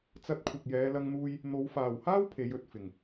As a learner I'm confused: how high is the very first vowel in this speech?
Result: low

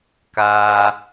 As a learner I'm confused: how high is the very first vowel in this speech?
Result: low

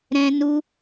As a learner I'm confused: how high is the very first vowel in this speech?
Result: mid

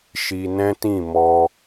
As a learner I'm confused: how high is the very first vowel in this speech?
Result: high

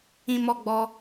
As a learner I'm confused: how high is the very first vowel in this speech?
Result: high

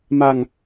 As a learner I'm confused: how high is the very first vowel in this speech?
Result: low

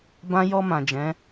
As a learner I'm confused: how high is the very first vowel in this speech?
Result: low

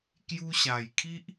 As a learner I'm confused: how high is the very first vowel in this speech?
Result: high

